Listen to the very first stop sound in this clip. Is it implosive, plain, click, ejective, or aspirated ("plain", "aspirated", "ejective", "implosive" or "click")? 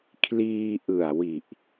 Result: aspirated